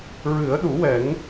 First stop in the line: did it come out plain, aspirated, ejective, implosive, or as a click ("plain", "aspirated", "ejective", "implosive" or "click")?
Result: implosive